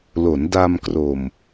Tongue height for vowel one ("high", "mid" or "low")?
mid